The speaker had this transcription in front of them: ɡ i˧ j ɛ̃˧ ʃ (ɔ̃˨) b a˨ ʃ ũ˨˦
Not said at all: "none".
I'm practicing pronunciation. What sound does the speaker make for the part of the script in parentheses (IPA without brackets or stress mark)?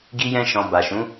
ɔ̃˨